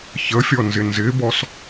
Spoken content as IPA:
çəfʲɔnzɪ nzɪbɔs

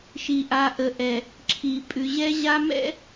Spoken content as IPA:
ʃi˨ʔa˨ ʔə˨ʔɛ˨ | ǁʰi˨ pʼʉ˨ʑɛ˦ʑa˦ mɛ̰˦

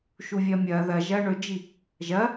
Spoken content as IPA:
ʃuvʲɐːmʲɐː ðɐ ʒɐːɳɵd͡ʒi | ʒɐ

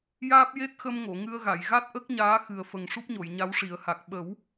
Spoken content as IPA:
jaː˦˥p̚je˦˥t̚xə˧m ŋo˨˩˨ŋɨ˧ə̯ɣa˨˩˨j ɣa˦˥t̚ʔə˦˥k̚ɲaː˧˥ xɨ˨˩ə̯fə˨˩ŋ ʂu˦˥p̚ɲo˨˩˨jɲa˧˥w ʂi˨˩˦ə̯ha˨˩k̚ ɓə˨˩˦w

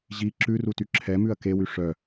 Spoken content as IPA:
ʑi ǁʉruty ǁʰɛmʉɐ̯ kewy ʂœ

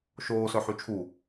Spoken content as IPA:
ʃoːsœ ħyt͡ʃʰu

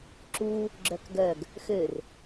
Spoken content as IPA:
ǁu | ɡ͡ǁœkɡœɡ | xør

